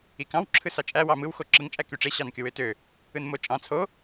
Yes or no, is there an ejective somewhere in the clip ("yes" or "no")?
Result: yes